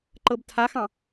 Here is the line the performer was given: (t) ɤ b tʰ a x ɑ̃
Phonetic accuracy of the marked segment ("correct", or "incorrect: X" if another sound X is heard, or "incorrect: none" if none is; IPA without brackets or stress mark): incorrect: ǃ